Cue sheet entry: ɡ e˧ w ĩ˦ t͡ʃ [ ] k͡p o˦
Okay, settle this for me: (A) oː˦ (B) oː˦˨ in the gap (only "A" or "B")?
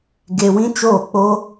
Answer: B